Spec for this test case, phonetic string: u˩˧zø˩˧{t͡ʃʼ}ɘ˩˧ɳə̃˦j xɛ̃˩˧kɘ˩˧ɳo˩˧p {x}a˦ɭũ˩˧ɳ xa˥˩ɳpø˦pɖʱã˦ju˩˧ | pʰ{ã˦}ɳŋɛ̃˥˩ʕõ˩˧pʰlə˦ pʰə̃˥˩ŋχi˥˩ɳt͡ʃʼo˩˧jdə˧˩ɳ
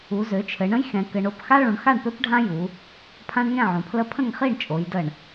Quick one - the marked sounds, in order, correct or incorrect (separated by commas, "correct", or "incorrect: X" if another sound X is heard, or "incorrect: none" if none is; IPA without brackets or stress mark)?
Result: incorrect: t͡ʃʰ, correct, correct